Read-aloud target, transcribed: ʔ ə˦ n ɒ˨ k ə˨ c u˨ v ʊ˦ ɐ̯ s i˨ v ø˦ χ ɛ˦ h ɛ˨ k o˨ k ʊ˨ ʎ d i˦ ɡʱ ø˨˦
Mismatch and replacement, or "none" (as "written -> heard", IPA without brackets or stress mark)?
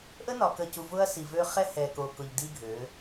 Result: none